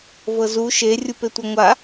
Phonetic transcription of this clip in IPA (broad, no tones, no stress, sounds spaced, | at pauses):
v ɤ z u ʃ e rʲ u p e tʷ ɤ ŋʷ a